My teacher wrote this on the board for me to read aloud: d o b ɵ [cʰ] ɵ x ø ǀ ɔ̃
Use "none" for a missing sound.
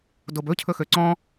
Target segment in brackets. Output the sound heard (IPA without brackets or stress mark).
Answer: cʰ